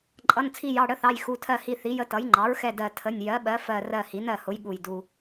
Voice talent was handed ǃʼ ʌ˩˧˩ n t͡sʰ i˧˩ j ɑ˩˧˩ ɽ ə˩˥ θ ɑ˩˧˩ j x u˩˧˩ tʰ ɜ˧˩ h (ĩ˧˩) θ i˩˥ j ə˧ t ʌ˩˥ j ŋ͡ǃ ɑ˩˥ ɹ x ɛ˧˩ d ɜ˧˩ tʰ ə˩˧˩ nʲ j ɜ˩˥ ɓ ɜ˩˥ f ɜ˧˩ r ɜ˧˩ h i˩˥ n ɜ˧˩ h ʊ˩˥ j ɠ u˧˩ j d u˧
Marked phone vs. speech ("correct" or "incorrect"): incorrect